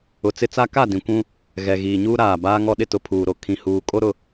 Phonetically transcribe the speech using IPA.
ʊ˨ t͡s ɪ˦ t͡s a˦ k a˦˨ d ĩ˨ kʷ ũ˦ | ɣ ɛ˨ ɣ iː˨ ɲ uː˦ ɾ aː˨ b aː˨ ŋ ɔ˨ ɗ ɪ˨ t ʊ˨ pʰ uː˨ ɾ o˨ kʰ ĩ˨ h uː˨ kʼ o˦ ɾ ʊ˦

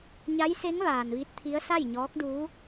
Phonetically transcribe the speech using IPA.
ɲ a˧˥ j s e˧˥ ŋ ʋ aː˩ n ʋ i˧˥ t̚ t̪ʰ i˧˥ ə̯ s a˥˨ j ɲ ɔː˧˥ k̚ d uː˧˥

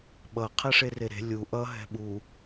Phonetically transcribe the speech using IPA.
ɓ ʌ qʰ ɛ ʂ e r e ɾ e̤ lʲ u ʔ ʌ ɦ ɛ̤ ɓ u

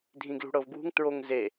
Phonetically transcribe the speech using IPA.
dʱ ĩ ɡ l ṳ ɽ ɤ v ɡ w ṳ ŋ t ɹ o ŋ z e

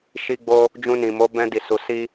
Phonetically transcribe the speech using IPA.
ʃ i˧ ɡ͡b o˧ | d͡ʒ ũ˧ n ĩ˨ m o˨˦ b ɛ̃˧ d i˨ s u˨ s i˧

